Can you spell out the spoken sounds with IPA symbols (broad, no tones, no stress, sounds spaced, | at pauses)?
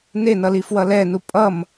n e n ʌ l i f w ʌ l ɛ n u pʼ ʌ m